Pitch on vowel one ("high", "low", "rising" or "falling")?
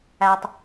low